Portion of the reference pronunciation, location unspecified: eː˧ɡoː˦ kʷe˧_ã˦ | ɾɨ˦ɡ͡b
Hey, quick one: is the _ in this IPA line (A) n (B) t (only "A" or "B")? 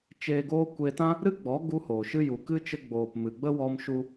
B